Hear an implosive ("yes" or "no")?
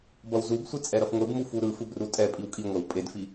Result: no